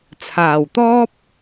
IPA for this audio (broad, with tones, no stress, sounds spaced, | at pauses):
t͡sʰ aː˨˩ w t̪ ɔː˥ p̚